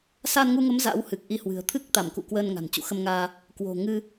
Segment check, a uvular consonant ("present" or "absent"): absent